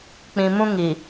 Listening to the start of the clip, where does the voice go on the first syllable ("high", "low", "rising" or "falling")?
low